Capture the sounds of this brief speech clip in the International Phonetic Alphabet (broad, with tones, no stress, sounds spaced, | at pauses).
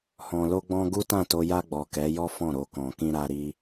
h ɔ̃˨ l o˧ ɡ͡b ɔ̃˧ ɡ u˦ t ã˦˨ t o˧ j a˧ ɡ͡b ɔ˨ k ɛ˨˦ j ɔ˦ f ɔ̃˦˨ ɾ o˧ k ɔ̃˨ k ĩ˧ ɾ a˧ ɾ i˧